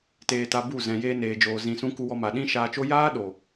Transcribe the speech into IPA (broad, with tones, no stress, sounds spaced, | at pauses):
t eː˧ t a˧ b u˦˨ z ɛ̃˨ j eː˧ n eː˨ d͡ʒ oː˨ z ĩ˨ s ũ˧ k u˧ w ɔ˧ m a˨ ɗ ĩ˦ ʃ aː˧ t͡ʃ o˦ j aː˦ ɗ o˨